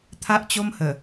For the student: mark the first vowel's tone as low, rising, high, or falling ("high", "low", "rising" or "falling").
high